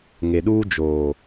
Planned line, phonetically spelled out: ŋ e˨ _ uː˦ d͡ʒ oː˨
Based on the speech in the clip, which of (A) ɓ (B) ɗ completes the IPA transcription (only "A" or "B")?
B